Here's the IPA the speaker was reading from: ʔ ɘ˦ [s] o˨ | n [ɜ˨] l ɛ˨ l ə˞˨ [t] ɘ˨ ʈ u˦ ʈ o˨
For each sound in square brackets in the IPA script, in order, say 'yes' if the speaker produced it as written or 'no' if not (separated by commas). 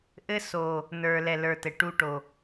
yes, no, yes